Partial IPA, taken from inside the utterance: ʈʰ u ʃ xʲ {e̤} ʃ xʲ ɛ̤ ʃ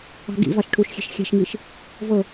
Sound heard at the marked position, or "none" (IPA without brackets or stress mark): e̤